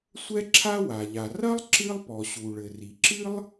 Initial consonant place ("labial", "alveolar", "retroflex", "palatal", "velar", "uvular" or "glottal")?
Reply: alveolar